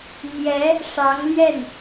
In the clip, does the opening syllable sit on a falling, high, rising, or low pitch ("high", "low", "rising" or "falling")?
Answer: rising